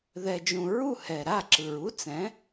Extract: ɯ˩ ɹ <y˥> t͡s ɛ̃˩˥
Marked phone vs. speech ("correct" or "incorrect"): incorrect